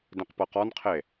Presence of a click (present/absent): absent